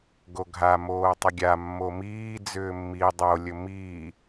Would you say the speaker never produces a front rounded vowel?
no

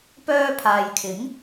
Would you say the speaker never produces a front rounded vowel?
no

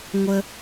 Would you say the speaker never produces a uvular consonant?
yes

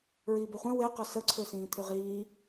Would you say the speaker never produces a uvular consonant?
no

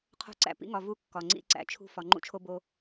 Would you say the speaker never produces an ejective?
yes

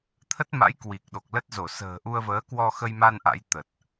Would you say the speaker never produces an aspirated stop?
no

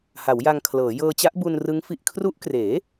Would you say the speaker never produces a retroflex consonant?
yes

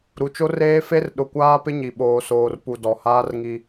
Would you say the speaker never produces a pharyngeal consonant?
yes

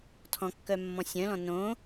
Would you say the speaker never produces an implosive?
yes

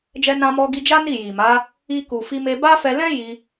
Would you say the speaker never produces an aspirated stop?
yes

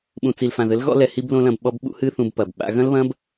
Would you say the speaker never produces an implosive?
no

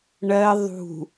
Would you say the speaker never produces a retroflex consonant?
no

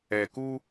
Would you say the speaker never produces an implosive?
yes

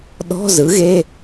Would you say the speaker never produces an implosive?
no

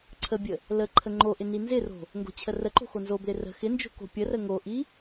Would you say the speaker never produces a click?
no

